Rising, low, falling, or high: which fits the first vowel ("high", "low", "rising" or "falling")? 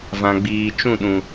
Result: low